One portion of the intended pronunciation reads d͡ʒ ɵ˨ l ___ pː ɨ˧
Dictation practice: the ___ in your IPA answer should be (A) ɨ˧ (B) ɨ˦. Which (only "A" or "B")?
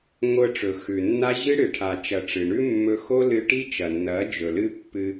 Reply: B